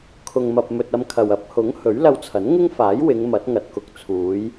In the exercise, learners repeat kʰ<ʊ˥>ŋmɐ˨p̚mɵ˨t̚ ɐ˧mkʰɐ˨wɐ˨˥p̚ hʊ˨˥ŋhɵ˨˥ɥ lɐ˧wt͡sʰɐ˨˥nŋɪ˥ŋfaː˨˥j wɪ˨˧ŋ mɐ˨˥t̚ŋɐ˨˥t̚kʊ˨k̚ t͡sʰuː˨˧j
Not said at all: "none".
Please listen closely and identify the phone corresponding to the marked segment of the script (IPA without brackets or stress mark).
ʊ˨